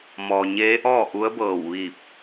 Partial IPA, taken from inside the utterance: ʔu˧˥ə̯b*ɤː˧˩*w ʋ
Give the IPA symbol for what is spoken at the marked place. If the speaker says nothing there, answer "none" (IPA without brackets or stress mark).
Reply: ɤː˧˩